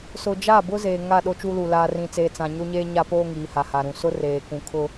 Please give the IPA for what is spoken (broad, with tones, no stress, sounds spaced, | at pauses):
s ʊ˨ d͡ʒ a˦˨ b ʊ˦ z eː˨ ŋ a˦˨ ɗ o˦ t͡ʃ uː˦ l u˨ l aː˨ r ĩ˨ t͡s eː˨ t͡s ã˨ ɲ o˦ ɲ eː˦ ɲ a˦ p oː˦ ŋ iː˨ h a˨ h a˨ ɾ ũ˨ s ʊ˦ r eː˨ k ũ˨ kʰ ʊ˦